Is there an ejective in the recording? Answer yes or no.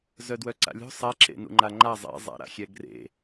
no